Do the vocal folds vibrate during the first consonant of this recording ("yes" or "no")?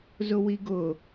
yes